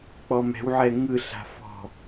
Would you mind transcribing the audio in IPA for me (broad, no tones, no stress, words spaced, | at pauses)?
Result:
k͡pɔmɛ̤wʕɛ ŋɯ ɬa̤fɔ̤